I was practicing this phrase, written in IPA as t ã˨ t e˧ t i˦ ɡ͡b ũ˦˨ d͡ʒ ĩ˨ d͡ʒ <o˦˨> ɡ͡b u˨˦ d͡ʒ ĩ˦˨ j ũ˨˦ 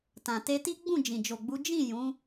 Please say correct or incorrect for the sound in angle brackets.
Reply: incorrect: o˨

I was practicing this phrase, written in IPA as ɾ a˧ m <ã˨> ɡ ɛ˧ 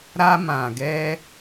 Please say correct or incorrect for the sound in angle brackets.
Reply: correct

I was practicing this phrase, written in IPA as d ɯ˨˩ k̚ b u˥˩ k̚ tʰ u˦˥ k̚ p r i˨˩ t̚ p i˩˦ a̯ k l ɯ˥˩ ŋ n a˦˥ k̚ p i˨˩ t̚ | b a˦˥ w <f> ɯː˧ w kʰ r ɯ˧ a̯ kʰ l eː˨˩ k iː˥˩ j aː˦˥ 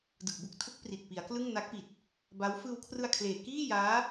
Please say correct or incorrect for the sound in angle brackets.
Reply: correct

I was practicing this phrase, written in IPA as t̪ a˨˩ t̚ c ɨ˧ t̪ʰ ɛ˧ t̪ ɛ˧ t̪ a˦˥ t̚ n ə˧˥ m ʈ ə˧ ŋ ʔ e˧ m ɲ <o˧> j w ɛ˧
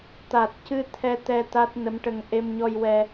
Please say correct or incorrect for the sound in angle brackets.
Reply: incorrect: ɔ˧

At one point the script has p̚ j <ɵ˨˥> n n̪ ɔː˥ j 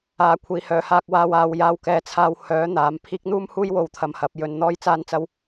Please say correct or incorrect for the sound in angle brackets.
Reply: incorrect: ɵ˧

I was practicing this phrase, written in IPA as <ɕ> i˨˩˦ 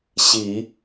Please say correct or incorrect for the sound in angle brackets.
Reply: correct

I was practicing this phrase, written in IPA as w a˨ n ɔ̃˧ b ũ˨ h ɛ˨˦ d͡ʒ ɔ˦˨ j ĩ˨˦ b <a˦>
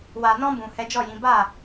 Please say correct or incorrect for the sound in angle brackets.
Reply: incorrect: a˦˨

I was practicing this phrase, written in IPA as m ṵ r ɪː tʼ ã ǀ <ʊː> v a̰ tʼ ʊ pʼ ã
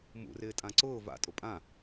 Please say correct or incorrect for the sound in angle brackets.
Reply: correct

